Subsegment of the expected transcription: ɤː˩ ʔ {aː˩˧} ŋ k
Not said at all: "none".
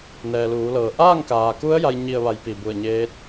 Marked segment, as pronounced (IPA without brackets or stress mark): aː˥˨